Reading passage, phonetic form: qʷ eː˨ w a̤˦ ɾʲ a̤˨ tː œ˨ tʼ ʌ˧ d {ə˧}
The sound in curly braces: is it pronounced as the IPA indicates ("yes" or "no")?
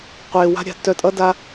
no